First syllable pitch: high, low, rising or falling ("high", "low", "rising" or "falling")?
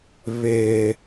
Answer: low